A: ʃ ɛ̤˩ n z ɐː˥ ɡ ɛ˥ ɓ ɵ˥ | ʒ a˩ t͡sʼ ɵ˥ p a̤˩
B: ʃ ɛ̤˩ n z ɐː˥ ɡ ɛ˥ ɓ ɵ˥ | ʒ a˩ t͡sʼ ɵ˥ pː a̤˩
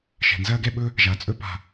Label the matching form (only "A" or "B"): A